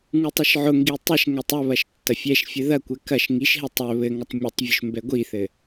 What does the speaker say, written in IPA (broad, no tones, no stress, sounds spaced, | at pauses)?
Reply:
ŋ u tˤ ɘ ʃ ʕ ʊ ŋ ɡ i tˤ ɛ ʃ ŋ ɛ tˤ ɵ β ɐ ʃ tː ɐ fʲ ɛ ʃ fʲ ɘ ð ɐ kʷ ɛ k ɐ ʃ ŋ i ʃ ɦ ɛ tˤ ɵ β ɘ ŋ ɐ tˤ mʲ ɵ tˤ vʲ ʊ ʃ m b ɛ ɡʷ i θ ɘ